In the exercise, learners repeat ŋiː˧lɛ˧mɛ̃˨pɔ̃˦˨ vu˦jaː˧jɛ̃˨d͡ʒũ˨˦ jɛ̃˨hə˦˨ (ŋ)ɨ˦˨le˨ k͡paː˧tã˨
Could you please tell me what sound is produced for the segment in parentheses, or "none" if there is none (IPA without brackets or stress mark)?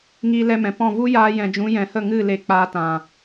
ŋ